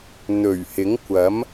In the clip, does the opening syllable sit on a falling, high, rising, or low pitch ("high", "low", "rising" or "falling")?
low